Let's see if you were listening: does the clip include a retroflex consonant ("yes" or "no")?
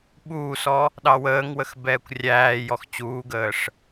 yes